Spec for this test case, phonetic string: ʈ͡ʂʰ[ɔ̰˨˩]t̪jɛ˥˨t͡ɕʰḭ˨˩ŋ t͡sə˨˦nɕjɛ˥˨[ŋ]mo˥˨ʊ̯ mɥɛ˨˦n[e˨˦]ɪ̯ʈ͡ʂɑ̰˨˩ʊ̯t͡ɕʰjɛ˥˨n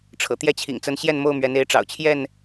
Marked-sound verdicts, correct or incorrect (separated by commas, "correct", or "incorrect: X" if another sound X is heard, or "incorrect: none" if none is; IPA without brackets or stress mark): incorrect: ɤ̰˨˩, incorrect: n, correct